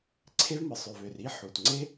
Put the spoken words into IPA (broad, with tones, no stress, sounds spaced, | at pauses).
ǀʰ e˥ v m ɯ˩ sˤ ø˩ v ø˩ r i˥ ħ u˩ t ŋ͡ǀ e˥